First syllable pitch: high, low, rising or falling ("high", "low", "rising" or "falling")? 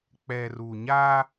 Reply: low